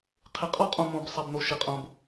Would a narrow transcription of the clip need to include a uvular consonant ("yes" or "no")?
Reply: yes